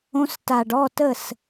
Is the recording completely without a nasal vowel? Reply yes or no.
no